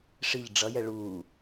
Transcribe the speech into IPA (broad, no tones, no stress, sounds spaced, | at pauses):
ʂ i ʎ ɖ͡ʐ ʌ j ɛ ɭ u